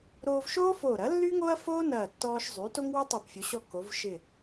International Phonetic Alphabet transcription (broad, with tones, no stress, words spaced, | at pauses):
ɾoː˧vʃoː˥foː˧˩ ɾɐ˩˥lːy˥ŋo˥ɐ̯foː˥ nɐː˧˩tːɔː˧ʃ zˤy˩˧ to˥ŋwo˥ tˤo˧˩pfʲo˩˧ɕɔ˧ ko˩˧v ʃɪ˧˩